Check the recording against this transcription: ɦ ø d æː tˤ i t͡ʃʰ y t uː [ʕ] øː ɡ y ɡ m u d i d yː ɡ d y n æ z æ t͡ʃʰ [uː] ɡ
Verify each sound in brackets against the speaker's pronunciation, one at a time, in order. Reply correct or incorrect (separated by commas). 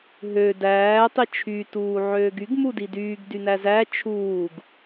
correct, correct